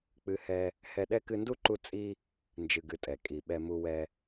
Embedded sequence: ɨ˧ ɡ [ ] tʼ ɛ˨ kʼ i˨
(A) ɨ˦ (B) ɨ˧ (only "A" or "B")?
B